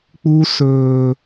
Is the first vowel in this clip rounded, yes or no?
yes